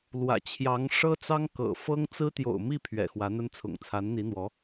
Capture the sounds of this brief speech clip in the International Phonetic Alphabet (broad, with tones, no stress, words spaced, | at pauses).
lwä̰˨˩ t͡ɕʰjɑ˧˥ŋ ʂɤ˥t͡sɑ˥ŋkɤ̰˨˩ fɤ˥ŋ t͡sɹ̩˥ t̪jo̰˨˩ʊ̯mi˥˩ pʰɥɛ̰˨˩xwä˧˥n̪ə˥nt͡sʰʊ̰˨˩ŋ t͡sʰa˧˥nn̪i˧˥n̪wɔ˧˥